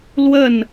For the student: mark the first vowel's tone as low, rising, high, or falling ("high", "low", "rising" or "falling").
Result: falling